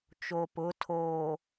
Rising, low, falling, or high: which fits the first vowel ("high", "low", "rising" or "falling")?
low